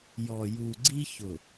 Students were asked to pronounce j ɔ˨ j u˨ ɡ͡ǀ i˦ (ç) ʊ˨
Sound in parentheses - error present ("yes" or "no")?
no